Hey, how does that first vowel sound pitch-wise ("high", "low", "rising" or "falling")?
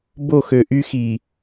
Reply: falling